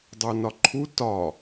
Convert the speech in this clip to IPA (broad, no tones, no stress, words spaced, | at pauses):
dˤonɒǃʰu tɒ